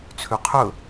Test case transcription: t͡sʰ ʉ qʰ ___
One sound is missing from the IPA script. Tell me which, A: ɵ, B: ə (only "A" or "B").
A